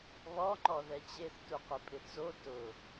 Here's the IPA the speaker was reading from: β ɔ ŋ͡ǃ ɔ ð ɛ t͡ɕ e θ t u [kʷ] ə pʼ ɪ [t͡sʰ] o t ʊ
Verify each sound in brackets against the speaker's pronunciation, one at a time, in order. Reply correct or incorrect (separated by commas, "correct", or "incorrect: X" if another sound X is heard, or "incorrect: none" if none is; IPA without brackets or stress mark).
incorrect: qʷ, incorrect: t͡s